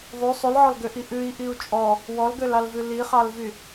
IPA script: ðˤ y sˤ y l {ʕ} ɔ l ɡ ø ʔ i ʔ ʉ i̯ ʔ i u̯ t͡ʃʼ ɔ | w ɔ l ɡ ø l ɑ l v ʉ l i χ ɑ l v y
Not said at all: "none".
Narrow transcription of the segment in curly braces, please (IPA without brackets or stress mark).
ʕ